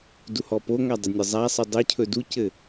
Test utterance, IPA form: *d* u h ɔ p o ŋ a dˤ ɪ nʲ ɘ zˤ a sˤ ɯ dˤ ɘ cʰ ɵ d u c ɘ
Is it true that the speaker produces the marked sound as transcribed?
yes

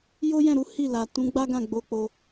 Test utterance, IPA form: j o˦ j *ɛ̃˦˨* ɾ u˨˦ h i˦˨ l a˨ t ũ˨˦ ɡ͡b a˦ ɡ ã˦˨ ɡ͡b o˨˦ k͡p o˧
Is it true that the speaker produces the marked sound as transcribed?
yes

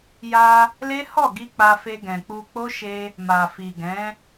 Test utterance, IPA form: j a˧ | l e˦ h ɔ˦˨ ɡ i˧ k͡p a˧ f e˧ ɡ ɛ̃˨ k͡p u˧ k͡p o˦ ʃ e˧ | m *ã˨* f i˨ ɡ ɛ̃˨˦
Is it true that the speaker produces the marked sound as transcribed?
no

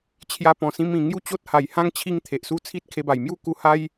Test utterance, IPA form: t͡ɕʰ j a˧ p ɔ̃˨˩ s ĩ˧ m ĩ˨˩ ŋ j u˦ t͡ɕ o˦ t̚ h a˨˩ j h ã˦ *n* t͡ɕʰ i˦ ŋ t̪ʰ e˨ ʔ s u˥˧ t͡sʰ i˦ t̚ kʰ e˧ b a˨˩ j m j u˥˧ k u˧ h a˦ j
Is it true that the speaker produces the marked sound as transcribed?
no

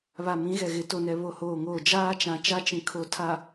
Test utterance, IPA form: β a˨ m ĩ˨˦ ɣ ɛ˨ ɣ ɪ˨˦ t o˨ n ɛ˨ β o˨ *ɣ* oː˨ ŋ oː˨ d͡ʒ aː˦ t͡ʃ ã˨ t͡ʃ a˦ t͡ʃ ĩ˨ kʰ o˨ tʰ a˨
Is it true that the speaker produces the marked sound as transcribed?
no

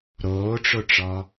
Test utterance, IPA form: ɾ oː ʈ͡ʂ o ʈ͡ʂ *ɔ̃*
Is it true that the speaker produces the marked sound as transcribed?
no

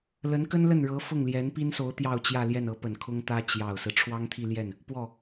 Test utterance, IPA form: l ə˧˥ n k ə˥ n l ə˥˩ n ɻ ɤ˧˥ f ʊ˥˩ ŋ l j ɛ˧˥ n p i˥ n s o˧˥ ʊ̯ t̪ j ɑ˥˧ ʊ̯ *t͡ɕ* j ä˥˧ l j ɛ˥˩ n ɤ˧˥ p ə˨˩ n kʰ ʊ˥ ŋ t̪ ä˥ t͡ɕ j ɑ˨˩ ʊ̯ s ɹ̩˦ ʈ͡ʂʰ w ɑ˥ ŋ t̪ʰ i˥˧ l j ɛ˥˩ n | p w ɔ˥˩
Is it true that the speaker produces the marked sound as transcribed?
yes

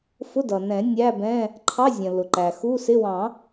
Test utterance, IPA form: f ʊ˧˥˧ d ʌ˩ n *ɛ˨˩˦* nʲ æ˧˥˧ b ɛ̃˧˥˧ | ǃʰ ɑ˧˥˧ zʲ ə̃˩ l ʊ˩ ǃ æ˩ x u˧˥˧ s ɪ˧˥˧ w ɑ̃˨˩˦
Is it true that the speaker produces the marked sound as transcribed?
no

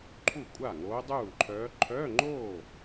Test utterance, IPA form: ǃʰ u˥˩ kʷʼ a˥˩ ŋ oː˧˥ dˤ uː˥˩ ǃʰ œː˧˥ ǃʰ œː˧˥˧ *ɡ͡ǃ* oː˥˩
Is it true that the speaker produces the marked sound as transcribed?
no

